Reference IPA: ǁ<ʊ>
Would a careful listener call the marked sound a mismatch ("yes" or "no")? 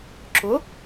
no